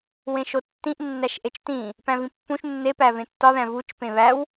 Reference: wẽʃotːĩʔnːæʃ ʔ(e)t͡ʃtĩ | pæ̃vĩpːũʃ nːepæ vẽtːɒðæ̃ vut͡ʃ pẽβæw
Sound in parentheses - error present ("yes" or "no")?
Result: no